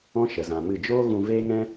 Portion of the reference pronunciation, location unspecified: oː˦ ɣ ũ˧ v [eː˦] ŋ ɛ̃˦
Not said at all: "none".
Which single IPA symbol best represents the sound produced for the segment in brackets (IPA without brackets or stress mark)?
eː˦